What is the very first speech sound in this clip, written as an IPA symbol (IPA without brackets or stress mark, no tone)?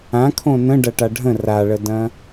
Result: ã